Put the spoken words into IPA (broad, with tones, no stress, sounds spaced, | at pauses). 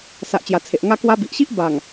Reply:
s a˨ ʔ t͡ɕ j a˨˩ t͡sʰ e˨ ʔ ŋ a˧ k w a˧ b i˨ ʔ ɕ i˦ ʔ b a˨˩ ŋ